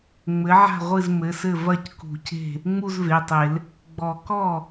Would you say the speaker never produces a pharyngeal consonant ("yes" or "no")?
no